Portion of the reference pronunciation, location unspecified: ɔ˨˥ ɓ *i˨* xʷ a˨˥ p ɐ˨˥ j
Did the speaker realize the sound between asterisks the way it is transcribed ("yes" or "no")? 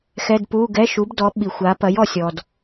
yes